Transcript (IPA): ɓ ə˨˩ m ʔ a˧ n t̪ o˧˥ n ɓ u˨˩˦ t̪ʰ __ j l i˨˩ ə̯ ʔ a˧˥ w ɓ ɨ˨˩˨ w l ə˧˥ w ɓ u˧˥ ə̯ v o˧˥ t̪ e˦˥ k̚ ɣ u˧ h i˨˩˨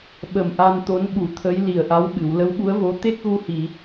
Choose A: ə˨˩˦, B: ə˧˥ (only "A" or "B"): B